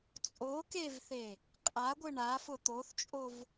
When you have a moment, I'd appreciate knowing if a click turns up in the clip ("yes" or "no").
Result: no